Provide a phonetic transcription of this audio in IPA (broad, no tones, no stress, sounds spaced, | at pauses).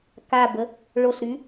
k a b ə | ɭ o ɬ ɾ y